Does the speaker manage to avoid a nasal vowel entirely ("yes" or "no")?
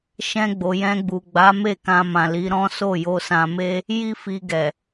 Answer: no